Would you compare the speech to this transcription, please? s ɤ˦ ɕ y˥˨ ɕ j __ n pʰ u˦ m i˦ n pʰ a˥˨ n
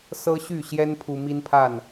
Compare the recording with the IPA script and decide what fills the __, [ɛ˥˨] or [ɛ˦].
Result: ɛ˦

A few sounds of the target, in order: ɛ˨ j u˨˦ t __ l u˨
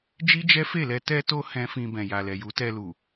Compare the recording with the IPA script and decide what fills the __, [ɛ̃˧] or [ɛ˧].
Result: ɛ˧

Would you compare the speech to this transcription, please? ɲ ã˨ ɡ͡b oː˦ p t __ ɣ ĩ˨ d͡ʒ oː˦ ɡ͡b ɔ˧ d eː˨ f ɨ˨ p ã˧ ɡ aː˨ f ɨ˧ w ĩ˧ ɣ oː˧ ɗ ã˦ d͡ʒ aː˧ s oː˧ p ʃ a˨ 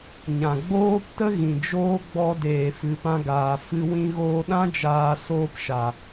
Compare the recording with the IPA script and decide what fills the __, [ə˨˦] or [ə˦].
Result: ə˦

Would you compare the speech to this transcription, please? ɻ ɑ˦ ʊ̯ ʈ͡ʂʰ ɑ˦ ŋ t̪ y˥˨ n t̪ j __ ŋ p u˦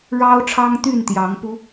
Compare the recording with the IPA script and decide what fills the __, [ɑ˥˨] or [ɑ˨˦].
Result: ɑ˨˦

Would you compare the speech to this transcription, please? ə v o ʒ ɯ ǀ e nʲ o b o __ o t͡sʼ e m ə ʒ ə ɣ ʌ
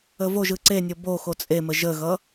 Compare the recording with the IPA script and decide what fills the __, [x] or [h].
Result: x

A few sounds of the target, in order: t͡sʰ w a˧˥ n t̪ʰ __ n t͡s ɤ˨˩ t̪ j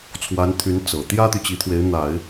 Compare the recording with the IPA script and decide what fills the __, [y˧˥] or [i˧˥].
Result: y˧˥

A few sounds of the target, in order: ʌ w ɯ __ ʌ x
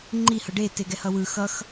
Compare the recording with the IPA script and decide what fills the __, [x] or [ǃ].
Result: x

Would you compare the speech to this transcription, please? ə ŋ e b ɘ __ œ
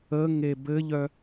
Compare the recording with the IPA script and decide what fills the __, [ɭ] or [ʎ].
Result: ʎ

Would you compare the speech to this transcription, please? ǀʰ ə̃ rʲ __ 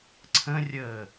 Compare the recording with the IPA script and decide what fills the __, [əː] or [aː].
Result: əː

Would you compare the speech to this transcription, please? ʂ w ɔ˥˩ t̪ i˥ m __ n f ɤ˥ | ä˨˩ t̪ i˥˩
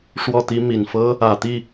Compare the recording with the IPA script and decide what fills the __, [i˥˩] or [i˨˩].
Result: i˨˩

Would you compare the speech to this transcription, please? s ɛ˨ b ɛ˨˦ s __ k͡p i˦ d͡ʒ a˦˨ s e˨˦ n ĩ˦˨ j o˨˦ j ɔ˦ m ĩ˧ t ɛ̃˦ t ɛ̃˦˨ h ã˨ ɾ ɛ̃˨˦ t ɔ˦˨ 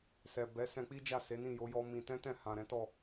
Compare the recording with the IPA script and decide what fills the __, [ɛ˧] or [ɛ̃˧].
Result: ɛ̃˧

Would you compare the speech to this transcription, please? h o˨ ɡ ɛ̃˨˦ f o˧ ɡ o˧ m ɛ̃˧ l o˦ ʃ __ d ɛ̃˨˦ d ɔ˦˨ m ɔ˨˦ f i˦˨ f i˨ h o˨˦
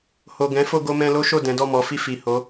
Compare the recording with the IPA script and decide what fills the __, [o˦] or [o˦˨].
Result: o˦˨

